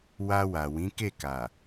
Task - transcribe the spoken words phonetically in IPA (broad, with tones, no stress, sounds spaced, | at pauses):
w a˧ w a˨ w ĩ˨˦ k e˦˨ k a˨